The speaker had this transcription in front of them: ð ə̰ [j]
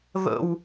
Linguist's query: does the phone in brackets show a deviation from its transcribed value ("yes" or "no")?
yes